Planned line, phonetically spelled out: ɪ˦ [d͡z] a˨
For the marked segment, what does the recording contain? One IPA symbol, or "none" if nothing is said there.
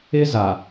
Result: z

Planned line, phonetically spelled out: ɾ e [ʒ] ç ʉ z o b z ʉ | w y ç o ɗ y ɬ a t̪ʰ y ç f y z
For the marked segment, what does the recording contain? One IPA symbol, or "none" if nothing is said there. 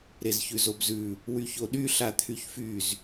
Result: z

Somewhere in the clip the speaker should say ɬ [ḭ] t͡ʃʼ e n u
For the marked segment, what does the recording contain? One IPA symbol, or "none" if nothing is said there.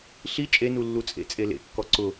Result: i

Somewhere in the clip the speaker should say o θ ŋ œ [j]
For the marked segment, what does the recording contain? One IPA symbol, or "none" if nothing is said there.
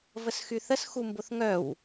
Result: w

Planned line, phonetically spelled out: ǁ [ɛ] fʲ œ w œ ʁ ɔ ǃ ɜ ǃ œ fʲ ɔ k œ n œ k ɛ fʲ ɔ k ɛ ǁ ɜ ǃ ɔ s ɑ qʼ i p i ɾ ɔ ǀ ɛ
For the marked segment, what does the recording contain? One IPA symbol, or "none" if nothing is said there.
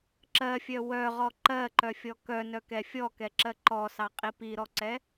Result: ɜ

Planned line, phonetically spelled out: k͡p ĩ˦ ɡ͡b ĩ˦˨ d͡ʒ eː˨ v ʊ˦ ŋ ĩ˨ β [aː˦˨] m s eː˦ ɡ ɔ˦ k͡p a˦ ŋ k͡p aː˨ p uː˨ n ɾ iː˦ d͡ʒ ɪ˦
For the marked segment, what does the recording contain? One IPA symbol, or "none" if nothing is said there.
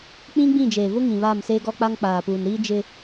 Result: aː˦˨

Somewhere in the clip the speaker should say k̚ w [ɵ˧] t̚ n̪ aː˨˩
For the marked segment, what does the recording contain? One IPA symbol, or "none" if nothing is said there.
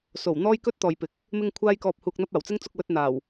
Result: ɵ˧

